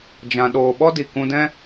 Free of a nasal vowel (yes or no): no